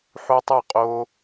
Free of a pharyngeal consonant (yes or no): no